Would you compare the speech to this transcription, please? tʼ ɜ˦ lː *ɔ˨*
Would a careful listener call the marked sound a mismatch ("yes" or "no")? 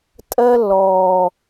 yes